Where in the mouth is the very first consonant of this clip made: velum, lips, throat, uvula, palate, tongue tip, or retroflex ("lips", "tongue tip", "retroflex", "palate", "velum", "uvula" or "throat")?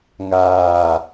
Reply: velum